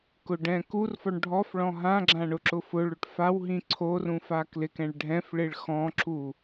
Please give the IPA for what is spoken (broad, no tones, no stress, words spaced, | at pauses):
kʊɖɛ̃kurfɔɳ ɖʱɔfɭɔ̃ ɦãɡ͡ǁã ɳʊǁʊfʊɭʊʈ faw ɦĩǀʰorũ faklɪkɛ̃ɭ ɖʱɛ̃fɭɪɭ xɔ̃ǁu